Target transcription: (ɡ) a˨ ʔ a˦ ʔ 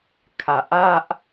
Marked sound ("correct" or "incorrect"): incorrect